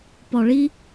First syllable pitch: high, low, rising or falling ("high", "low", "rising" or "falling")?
low